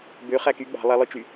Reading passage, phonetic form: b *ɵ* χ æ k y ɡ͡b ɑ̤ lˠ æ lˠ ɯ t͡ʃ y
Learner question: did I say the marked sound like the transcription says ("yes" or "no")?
no